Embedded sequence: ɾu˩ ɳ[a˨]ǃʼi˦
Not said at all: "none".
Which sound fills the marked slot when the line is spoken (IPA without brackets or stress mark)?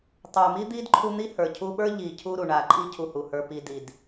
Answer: a˨